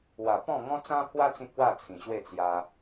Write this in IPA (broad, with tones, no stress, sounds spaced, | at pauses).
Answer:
w a˨˩ p ɔ̃˥˧ ŋ ɔ̃˦ t͡s ã˦ pʰ w a˦ t͡s ĩ˦ k̚ w a˥˧ t͡sʰ ĩ˨˩ ɕ w e˥˧ t͡s j a˧